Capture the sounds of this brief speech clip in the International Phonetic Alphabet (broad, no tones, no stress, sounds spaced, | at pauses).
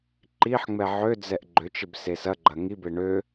ǃ i ħ ŋ͡m ɛ ʕ ø d͡z ɛ ʔ ɡ͡ǃ ø t͡ʃ ɪ b s e s ɐ ɡ͡ǃ ɐ ŋ i b e ɳ ø